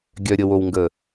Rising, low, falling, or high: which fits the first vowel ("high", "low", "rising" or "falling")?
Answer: low